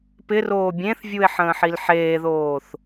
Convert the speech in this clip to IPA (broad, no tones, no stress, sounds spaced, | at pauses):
p ɪ r oː bʲ ẽ θ vʲ u e̯ ħ ə̃ː ħ i l ħ eː ð oː θ